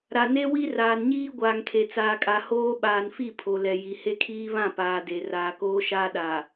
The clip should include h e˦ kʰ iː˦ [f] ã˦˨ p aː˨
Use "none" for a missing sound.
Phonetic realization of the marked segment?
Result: β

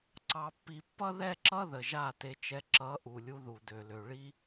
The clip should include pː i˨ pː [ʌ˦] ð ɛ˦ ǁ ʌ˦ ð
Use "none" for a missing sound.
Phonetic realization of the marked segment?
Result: ʌ˦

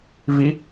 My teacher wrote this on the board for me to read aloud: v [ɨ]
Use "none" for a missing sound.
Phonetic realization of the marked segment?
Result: i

